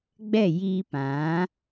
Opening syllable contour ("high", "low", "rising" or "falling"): falling